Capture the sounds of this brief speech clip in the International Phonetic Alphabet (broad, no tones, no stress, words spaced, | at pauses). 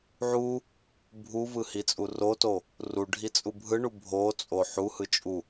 ʕu | bʱuvɯhit͡sʼu roto | ruɖʱit͡sʼu bʱɯɳu bʱot͡sʼo ħuhɯ t͡ʃʼu